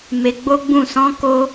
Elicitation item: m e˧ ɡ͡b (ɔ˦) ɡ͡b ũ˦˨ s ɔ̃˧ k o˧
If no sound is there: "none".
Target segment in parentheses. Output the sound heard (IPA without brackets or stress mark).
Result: o˦